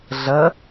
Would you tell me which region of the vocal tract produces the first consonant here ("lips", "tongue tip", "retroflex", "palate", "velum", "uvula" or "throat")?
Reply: tongue tip